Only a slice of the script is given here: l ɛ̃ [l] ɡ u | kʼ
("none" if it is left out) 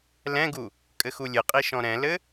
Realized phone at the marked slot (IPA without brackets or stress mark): none